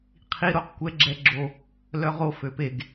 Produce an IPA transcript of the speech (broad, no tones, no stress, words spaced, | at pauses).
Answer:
qʰi ɾoqkʷɛ ɡ͡ǁɛɡ͡ǁo | lœʁo føpeɡ